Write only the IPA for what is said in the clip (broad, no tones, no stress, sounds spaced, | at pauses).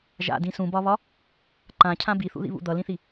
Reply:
ʒ a̰ d ĩ s ũ b ɒ β ɒ | ǃ ã cʰ ã b i θ ṵ ð ḭ β ṵ d̪ ʌ l ĩ θ i